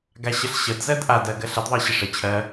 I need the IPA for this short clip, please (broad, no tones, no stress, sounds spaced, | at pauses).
ɡ a ɕ ə ɬ ɕ ə d z ɜ d ʔ a d ɜ ɡ ɜ ɬ ə d ðˤ ɜ ɕ ə ʂ ə t͡ɕʰ ɜ